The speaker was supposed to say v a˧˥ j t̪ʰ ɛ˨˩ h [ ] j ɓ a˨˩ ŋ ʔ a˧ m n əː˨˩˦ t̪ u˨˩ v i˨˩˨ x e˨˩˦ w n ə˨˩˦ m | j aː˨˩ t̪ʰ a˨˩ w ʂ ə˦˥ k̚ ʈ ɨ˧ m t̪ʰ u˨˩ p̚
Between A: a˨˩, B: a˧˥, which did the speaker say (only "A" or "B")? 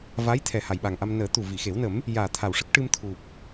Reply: A